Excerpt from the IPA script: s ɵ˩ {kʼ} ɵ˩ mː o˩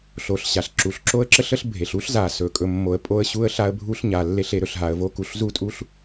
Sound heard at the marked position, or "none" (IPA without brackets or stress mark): kʼ